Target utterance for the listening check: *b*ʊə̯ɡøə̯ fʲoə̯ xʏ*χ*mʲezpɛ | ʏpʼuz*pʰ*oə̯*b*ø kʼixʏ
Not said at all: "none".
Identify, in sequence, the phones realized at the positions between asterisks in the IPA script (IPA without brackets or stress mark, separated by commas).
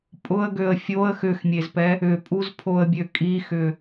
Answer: pʼ, x, pʰ, bʲ